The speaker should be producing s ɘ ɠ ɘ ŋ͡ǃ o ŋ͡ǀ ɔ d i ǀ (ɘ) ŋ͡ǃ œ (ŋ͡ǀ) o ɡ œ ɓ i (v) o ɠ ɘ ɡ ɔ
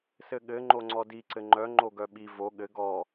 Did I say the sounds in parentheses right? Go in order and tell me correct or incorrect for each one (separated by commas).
correct, incorrect, correct